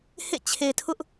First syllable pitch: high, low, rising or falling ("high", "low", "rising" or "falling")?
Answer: falling